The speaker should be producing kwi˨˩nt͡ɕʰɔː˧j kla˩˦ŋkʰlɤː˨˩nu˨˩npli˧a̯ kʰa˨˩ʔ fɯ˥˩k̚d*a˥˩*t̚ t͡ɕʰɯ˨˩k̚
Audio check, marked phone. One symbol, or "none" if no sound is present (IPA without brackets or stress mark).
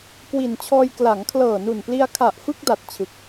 a˨˩